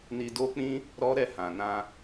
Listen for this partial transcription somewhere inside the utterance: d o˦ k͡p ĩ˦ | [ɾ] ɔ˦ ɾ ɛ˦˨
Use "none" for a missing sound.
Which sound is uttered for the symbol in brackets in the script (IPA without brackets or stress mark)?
ɾ